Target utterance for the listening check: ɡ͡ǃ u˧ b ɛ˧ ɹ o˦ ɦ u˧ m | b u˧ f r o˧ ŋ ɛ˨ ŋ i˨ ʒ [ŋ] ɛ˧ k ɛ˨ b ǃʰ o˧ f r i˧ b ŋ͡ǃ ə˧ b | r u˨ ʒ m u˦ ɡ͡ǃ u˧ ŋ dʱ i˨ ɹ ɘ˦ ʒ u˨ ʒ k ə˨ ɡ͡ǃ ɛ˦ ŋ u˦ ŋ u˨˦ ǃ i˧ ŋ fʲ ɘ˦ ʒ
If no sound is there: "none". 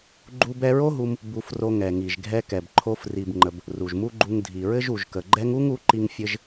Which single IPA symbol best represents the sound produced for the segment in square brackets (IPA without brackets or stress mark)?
ɡʱ